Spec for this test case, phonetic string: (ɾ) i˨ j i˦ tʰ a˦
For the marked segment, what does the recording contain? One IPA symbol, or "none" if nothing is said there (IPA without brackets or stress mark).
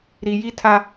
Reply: ɾ